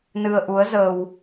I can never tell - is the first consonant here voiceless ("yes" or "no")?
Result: no